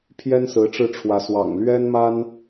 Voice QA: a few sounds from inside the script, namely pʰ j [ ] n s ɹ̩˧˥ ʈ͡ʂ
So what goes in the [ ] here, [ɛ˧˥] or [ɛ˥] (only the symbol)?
ɛ˥